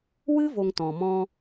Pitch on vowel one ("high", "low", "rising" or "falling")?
high